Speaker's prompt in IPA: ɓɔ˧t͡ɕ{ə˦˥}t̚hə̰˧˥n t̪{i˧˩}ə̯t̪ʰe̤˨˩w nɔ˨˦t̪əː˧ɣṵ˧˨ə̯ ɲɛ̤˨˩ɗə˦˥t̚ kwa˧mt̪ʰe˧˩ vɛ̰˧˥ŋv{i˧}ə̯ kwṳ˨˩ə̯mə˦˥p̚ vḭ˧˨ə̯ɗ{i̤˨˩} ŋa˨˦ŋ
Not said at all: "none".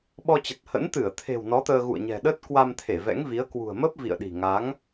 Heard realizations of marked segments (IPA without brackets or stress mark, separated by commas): ə˨˩, ɨ˧˩, i˨˦, i̤˨˩